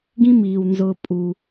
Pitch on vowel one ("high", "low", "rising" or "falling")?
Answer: high